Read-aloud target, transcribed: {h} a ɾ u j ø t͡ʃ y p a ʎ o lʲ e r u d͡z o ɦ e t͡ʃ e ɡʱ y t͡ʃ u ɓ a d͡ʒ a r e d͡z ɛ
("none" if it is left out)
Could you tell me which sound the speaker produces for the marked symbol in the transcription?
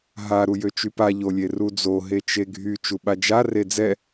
ɦ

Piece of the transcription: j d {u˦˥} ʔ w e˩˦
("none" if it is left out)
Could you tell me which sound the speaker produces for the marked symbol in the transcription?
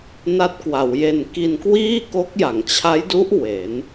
u˦˥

